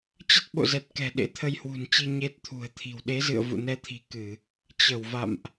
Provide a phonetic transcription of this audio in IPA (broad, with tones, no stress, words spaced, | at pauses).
t͡ɕə˦˥t̚ɓo̰˧˨zɛ˨˩t̚ kɛ̤˨˩ ɗḛ˧˥t̪ʰə˧jhwṳ˨˩nt͡ɕi˧ ɲe˦˥t̚t̪ʰṳ˨˩ə̯t̪ʰi̤˨˩w ɗe˨˦zɨ̰˧˨ə̯vṵ˧˨ nɛ˧t̪ʰi̤˨˩ kɨ˧˩˨ | t͡ɕə˧˩wva̰˧˨mʔ